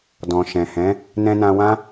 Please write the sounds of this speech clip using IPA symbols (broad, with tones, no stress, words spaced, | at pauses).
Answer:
dɔ̃˨ʃɛ̃˨hɛ̃˨˦ | nɛ̃˧nã˧wã˦